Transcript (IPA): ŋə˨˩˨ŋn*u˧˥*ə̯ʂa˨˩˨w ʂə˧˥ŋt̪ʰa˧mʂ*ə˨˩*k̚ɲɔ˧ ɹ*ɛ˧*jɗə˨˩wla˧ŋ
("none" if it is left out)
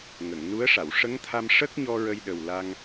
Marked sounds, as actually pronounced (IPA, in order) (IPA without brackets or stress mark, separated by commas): u˧˥, ə˦˥, ə˧